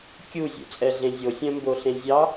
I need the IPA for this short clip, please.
kʲuzʲṵt͡sʼɛɮẽ zʲosʲœ̃mboɬẽ zʲɑ

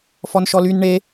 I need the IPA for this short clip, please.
fɔnʃɔlyn ɳe

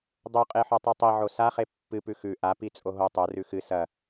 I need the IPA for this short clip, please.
dˤoqʼeħo tˤʉtˤiʕo saχe pːɨpʉ xʉ ʔapi t͡sʼoɦo tˤo rʉxɨ sɐ

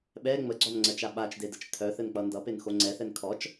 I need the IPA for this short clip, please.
ɓɛ ŋ͡məɡ͡ǀɔnŋ͡ǀət͡ʃa ɓat͡ʃdedət͡ʃ tʰœθɘnk͡pʌ ndʌpenxo ŋ͡ǀɛθɛn kʰɔt͡ʃ

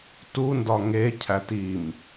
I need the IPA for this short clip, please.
tundɒ ŋecʰæt im

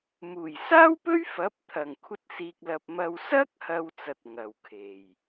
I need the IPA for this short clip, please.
muː˨˩jsaː˥wpɵ˥ɥ fɐ˨˥p̚t̪ʰɐ˨˩ŋ kʷʰɐ˧t̚siː˨k̚lɐ˨p̚ mɐ˨wsɐ˥k̚hɐ˨w t͡sɐ˨t̚ ŋɐ˨˩wkʰe˨˩j

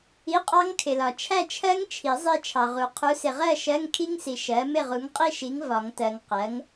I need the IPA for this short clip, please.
i˧˥˧qʼɑ˦˥ŋkʰɪ˨lɒ˨ t͡ʃʰæ˥˨t͡ʃʰɜ˦˥ŋt͡ʃʰi˨˩˦ zˤi˥˨t͡ʃʰɑ˨ʁu˨ qʰu˨˥sɪ˨ʁɜ˥˨ ʃɜ˧˥˧ŋkʰi˦˥ŋsi˨ ʃɜ˨˥ mɪ˥˨ʁu˨˥ŋqʼi˥˨ʃi˨˥ŋ vɒ˨˩˦ŋtɜ˨ŋ qɜ˨˥ŋ

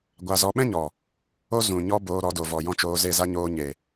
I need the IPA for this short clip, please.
ɡʷa˧zɔ˧ ɓɛ̃˦ɲɔ˨ | o˦ zũ˨ɲɔ˧ boː˧ɾɔ˨˦do˨ vɔ˨jɔ̃˦t͡ʃoː˧ ze˦˨za˦ ɲoː˧ɲe˨

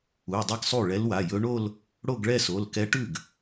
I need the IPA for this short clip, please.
u˩˧˩dˤɛ˥˧ɡ sˤu˥˩ɭɛ˧˥lwa˩˧˩jɵ˧˥ ɳo˥˧l | ɽo˥˧ɡɭɛ˥˧so˩˧˩lkɛ˧˥ ʈʉ˥˩ɡ

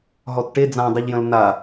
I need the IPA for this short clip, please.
ɦɔtʈe d͡zãdˤɨʎjə̃l na

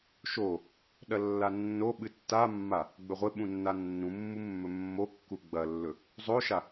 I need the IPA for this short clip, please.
ʃo | ɗɐlːanːo ɓɨtːamːa | ɡ͡bɵʁʷe ɓũnːanːũmːu mːɵmːokːu ɡ͡bɐlːɵ | zˤoʃa

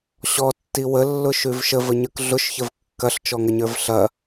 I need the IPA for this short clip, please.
ɕɔtːi wəlːʊʃʉv ʃəvəɲə˞k ɮʊʃçəv kːɐɬt͡ʃɔŋɐɲə˞v ɬɐ

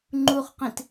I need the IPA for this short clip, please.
ŋ͡ǃuχqĩt

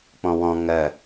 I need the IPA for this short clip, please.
k͡pɔ̃wɔ̃ ŋɜ

